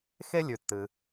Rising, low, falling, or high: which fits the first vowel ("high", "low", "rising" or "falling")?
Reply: high